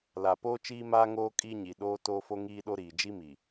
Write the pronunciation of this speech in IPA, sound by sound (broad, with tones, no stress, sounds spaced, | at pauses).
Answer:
l a˨ p oː˦ t͡ʃ iː˦ m aː˦ ŋ oː˦ kʼ i˦ ɲ i˨ ɗ oː˦ t oː˦ f o˦ ŋ iː˦ ɗ o˦ ɾ iː˨ d͡ʒ i˦ m i˨